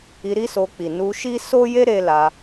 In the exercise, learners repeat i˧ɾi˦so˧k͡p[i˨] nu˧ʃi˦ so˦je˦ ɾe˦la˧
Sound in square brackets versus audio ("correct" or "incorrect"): correct